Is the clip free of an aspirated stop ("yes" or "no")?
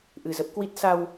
yes